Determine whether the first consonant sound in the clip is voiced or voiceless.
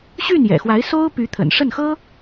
voiceless